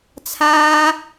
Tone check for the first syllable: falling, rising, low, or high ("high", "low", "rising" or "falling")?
low